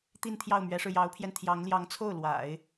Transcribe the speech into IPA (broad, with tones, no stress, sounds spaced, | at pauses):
t̪ i˥˧ n t̪ʰ j ɑ˥˩ ʊ̯ m ɥ ɛ˧˥ ʂ ɻ̩˧ j ɑ˧˥ ʊ̯ pʰ j ɛ˧ n t̪ʰ j ɑ˧˥ ŋ l j ɑ˧˥ ŋ t͡sʰ o˥˩ ʊ̯ l w a̰˨˩˦ ɪ̯